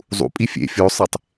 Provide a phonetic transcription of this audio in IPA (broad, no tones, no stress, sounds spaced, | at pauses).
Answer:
zˤ ṵ pʼ i fʲ ḛ fʲ o sˤ e tˤ